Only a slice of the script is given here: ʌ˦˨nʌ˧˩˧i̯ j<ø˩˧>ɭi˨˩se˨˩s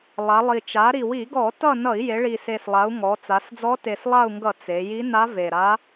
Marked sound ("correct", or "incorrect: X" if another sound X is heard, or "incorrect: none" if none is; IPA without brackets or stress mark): incorrect: e˩˧